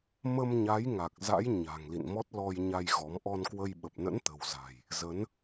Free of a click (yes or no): yes